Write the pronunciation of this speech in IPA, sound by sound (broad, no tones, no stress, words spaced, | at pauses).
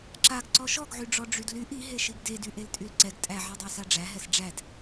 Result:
ǁaɡ ǀɔʃɔɡʕyɖ͡ʐɔ ɖ͡ʐydlyʔ iɦe ʃiɡdedy ʔeltʼylǀɛɡ tʼæʕidˤæsa ɖ͡ʐæɦɛs ɖ͡ʐæd